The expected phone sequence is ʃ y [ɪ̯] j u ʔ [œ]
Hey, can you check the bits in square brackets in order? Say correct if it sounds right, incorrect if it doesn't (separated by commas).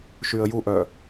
incorrect, correct